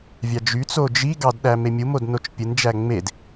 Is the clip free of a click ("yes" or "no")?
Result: yes